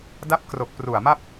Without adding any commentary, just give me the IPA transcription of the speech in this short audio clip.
d a˦˥ p̚ k r o˨˩ k̚ p r u˨˩ a̯ m a˥˩ p̚

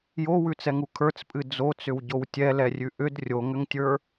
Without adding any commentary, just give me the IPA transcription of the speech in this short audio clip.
j o w ʉ t͡s ɛ ŋ u kʰ ə˞ t͡s pʼ ɨ d͡z o t͡s ʏ w ɟ o w tʲ ɛ l ɛ rʲ ʉ ʔ ʏ d rʲ o ŋ ʏ ŋ tʲ ə˞

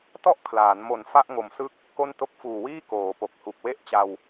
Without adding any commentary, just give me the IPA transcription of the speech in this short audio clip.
t ɔ˥˩ ʔ kʰ l aː˩˦ n m o˨˩ n f a˥˩ ʔ ŋ o˨˩ m s ɯ˦˥ k̚ | k o˥˩ n t o˥˩ k̚ f uː˨˩ w iː˥˩ k oː˩˦ p o˨˩ k̚ h u˨˩ k̚ w e˥˩ ʔ t͡ɕ a˧ w

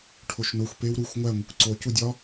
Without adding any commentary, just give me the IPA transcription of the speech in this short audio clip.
ʈʰ o ʃ n o xʷ p e w ɾ u xʷ ŋʷ æ ŋʷ i kʷ ǀ o c u dʲ ɒ

